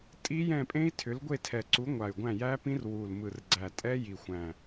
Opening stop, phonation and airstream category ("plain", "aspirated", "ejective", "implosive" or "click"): ejective